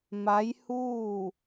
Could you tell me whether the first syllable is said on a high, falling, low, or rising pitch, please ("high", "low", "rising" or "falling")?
rising